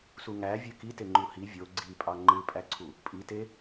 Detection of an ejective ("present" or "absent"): present